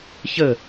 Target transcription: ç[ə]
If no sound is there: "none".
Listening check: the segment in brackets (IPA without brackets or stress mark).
ə